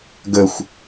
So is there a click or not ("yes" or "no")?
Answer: no